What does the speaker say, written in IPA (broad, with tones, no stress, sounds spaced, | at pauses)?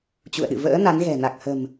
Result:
t͡ɕ ṵ˧˨ ə̯ ɗ ɨ̰˧˨ v ə̰ː˧˥ n a˨˦ n ɣ ɛ̤˨˩ n a˨˩ k̚ h ə̤˨˩ m